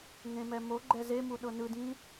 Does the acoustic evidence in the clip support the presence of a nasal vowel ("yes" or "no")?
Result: yes